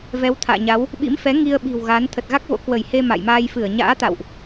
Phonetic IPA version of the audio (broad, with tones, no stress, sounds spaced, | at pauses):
v ɛ˨˦ w t̪ʰ a̰ː˧˨ ɲ a˨˦ w | ɓ ḭ˧˥ m f ɛ˨˦ ŋ i˧ ə̯ ɓ i̤˨˩ w ɣ aː˨˦ n t̪ʰ ə˨˩ t̚ ɣ a˦˥ k̚ v o̰˧˥ k w ə˧˩ j h e˧ m a̰˧˨ j m aː˧ j f ɨ˧˩ ə̯ ɲ a̰ː˧˥ t̪ a̰˧˨ w ʔ